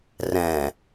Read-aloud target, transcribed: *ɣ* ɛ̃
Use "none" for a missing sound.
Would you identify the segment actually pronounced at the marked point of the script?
r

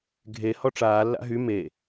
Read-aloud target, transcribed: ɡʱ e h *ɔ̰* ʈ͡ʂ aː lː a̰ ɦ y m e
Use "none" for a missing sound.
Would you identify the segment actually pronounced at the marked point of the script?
ɔ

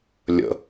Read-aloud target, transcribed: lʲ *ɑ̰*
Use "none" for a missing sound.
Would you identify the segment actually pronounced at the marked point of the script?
ə̰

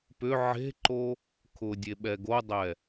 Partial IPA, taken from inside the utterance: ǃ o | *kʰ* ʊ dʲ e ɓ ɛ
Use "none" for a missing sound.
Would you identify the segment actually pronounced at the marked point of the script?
kʰ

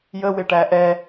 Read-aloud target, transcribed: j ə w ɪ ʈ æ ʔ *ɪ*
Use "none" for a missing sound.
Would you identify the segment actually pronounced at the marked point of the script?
ɛ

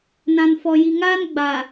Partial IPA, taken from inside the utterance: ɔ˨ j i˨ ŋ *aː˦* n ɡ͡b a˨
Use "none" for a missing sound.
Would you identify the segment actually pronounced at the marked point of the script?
aː˦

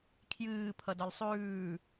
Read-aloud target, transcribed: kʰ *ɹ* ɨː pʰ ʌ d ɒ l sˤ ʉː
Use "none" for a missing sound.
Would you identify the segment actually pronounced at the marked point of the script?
j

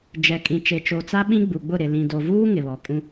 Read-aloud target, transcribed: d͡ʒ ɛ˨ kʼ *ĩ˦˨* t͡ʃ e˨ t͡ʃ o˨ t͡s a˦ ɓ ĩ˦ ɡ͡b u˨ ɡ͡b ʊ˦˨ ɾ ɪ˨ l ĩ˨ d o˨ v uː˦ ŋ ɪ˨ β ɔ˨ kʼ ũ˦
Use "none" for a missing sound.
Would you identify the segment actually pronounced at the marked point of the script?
ĩ˨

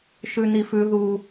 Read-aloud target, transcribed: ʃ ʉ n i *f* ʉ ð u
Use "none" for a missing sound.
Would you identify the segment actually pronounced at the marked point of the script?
f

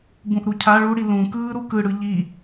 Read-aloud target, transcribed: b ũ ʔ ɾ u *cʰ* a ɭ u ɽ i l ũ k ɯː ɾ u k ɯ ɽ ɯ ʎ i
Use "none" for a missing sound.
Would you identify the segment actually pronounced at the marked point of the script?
cʰ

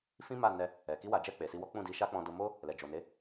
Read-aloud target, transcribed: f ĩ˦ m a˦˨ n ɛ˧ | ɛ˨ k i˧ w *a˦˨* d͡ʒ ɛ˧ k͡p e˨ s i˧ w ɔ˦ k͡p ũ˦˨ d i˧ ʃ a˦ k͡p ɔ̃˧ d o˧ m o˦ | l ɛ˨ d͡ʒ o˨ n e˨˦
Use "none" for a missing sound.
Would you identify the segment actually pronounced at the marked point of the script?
a˨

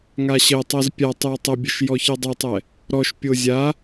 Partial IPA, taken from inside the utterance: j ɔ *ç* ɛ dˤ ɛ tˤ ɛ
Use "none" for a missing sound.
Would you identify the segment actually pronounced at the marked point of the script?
ç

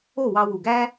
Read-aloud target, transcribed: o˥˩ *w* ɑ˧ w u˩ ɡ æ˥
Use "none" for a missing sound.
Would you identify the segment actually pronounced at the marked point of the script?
w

